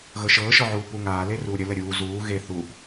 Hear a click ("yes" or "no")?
no